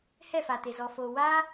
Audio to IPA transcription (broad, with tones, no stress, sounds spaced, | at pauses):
h ɛ˦˨ f aː˨ t e˨ z ɔ˨ f oː˨ w aː˧